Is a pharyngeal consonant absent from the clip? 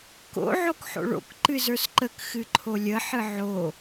no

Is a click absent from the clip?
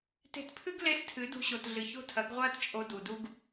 yes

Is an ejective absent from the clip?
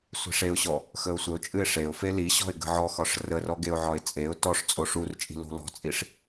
no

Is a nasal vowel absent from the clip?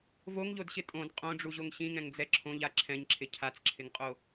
no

